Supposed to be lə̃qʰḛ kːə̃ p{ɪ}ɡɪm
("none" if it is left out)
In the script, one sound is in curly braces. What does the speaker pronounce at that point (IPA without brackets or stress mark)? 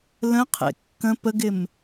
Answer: ə